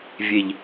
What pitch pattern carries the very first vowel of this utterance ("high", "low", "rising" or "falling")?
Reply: low